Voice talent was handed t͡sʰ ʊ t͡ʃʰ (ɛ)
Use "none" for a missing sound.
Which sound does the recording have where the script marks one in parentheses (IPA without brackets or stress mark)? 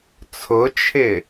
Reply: ɪ